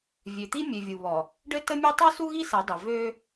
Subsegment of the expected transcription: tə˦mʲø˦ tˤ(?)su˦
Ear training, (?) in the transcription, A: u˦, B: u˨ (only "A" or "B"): A